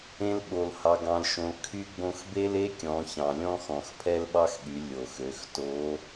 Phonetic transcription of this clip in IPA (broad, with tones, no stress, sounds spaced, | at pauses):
ẽ˧ l ɓ o˩ l h ɑ˩ ɡ ɑ̃˩ l ʃ õ˩ l kʰ y˧˥ ɡ͡b õ˧ x b e˥ l e˥ kʲ ɔ̃˩˧ ç ɑ̃˩ lʲ ɔ̃˥ x ɔ̃˩ x pʰ ɛ˥ l ɓ ɑ˥ x ɠ y˩˧ lʲ o˩ x ø˩˧ x t o˧˥